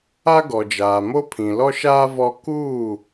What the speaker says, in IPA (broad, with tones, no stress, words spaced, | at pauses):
a˦ɡɔ˨d͡ʒaː˨mo˦ pʰĩ˨lɔ˦ʃaː˦ vɔ˦ kuː˦˨